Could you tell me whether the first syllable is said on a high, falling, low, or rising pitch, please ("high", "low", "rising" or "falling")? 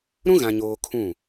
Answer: high